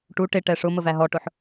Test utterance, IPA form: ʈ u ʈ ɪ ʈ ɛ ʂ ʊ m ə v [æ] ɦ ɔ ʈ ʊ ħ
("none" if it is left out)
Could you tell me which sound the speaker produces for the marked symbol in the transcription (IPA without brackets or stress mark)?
æ